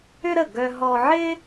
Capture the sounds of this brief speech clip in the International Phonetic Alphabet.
ʏ˥ ɾ ə˥˩ ɡ œ˧ ɦ ɔ˧ ʕ ɪ˥

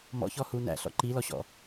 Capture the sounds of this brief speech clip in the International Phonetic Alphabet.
m ɔ̰ ç ɔ h u n æ̰ ɬ ɔ̰ ǃ i l ɔ ɕ ɔ̰

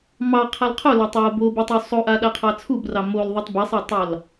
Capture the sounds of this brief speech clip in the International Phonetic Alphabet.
m ɑ qʰ a l qʰ o l a tˤ w o b o b u tˤ u sˤ o ʔ a ɗ a qʰ ɑ t͡sʰ u b r ɑ m o l ðˤ o tˤ b ɛ sˤ a tˤ ɑ l

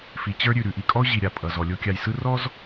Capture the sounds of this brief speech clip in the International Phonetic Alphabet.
f i˨ t͡ɕ ə˞˦ ɾʲ ʉ˨ ɾ ʉ˨ ʔ i˨ kʼ ɔ˦ ʊ̯ ʑ i˨ ɾʲ a˨ pʼ ʌ˨ z ɔ˨ lʲ o˦ kʲ a˨ j s ɯ˦ r ɔ˦ z

